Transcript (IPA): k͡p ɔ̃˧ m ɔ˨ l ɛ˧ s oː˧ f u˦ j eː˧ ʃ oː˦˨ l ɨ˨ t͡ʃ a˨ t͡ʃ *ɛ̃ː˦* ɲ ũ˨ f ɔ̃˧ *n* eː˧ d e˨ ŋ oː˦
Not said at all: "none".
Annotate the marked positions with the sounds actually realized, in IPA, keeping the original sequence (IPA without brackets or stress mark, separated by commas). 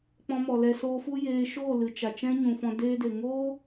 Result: ɛ̃˦, d